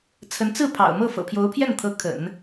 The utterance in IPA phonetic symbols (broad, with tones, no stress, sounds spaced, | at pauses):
t͡sʰ ə˧˥ n t͡s ɹ̩˥˩ pʰ ɑ̰˨˩ ʊ̯ m ɤ˥˩ f ɤ̰˨˩ pʰ j o˧˥ ʊ̯ pʰ j ɛ˥˩ n t̪ʰ ɤ˧˥ kʰ ə̰˨˩˦ n